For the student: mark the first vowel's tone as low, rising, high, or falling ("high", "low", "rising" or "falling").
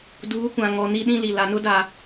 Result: rising